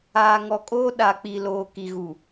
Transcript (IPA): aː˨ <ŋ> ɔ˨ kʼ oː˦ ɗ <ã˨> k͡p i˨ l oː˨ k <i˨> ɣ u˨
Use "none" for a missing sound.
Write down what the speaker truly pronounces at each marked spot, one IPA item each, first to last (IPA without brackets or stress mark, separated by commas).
ŋ, a˨, i˨